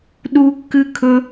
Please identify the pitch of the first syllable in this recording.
high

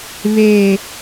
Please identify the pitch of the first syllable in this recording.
low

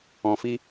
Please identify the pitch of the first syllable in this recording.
low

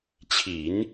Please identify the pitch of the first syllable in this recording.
low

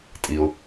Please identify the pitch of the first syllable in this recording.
low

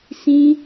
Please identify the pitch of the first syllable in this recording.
high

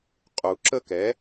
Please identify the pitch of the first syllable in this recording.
low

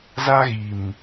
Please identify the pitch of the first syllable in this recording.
high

